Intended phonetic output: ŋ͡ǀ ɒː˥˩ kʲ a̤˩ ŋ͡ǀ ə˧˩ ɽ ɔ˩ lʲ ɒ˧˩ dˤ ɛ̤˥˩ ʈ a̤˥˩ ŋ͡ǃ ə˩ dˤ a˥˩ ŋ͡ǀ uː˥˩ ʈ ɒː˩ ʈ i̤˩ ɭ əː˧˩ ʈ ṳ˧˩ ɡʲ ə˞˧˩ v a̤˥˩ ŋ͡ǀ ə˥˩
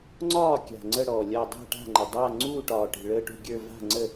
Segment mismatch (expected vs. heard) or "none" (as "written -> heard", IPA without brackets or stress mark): none